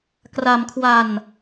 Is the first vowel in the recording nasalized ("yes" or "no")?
no